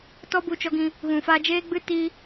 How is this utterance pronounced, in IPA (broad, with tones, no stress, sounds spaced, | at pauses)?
t ɔ˦ b u˧ t͡ʃ ɔ˧ ɡ ĩ˧ | ɣ ũ˨ f a˧ d͡ʒ eː˦ ɡ͡b ɨ˦ t i˧